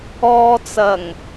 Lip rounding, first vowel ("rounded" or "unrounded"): rounded